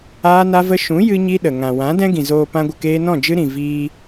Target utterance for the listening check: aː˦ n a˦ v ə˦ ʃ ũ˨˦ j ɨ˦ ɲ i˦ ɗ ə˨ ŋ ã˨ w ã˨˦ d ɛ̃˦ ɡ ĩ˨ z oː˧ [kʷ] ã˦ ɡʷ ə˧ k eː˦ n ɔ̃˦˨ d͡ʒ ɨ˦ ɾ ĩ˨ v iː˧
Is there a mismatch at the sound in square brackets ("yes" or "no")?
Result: yes